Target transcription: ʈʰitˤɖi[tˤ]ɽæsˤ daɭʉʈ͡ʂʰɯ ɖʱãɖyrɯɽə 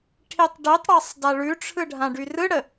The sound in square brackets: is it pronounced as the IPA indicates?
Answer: yes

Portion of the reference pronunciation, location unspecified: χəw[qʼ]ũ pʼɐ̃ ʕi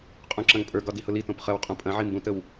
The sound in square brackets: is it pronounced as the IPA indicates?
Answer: yes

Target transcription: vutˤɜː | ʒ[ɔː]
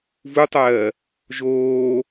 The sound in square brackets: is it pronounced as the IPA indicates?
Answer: no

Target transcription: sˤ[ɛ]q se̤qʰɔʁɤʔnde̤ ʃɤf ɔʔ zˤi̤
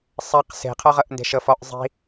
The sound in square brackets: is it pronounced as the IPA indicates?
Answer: yes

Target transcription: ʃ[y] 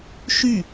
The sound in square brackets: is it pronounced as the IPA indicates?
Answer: yes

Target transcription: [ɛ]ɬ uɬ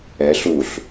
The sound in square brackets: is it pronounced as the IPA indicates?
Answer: yes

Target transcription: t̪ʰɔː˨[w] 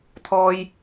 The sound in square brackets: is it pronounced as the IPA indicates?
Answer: no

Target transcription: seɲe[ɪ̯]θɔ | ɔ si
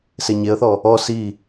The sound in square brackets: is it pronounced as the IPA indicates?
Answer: no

